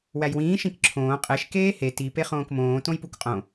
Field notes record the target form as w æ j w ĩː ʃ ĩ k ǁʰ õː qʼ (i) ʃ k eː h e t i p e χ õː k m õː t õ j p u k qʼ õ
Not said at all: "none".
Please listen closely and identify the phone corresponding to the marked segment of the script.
e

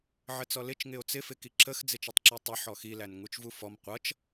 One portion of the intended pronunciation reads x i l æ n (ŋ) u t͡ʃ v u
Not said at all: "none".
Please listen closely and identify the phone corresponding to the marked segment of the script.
ŋ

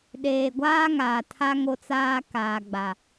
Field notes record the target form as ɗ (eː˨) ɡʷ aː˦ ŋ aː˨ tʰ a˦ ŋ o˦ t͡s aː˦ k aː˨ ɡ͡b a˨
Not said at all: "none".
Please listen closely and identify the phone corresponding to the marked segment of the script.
eː˨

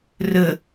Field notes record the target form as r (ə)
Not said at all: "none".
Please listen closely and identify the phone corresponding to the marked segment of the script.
ə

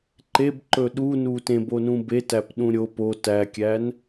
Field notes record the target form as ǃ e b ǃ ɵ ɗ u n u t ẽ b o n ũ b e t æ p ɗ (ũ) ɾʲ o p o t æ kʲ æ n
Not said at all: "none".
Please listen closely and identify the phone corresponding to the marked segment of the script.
ũ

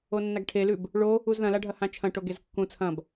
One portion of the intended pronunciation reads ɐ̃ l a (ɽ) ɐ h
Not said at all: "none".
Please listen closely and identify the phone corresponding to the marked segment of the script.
ɖʱ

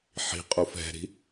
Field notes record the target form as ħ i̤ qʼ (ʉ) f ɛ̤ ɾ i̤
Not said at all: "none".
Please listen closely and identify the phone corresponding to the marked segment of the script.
u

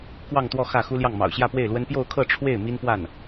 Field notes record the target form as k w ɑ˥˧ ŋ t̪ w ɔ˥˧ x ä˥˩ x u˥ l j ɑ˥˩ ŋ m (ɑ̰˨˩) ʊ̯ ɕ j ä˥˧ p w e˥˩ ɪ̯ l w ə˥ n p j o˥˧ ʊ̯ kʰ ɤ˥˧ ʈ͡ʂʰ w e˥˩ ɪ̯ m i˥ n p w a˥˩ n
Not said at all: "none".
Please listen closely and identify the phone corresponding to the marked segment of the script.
ɑ̰˨˩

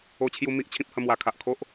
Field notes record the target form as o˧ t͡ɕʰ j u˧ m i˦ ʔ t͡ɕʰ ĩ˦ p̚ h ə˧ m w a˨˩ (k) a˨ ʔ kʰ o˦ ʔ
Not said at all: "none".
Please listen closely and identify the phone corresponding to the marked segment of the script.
kʰ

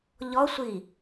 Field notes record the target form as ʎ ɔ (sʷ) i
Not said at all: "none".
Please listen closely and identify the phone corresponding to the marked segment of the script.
sʷ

